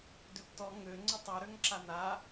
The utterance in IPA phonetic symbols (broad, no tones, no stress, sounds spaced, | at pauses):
d ø p t ɔ ŋ ø ŋ͡ǀ ʊ tˤ u ɾ ø ŋ ǁ a n a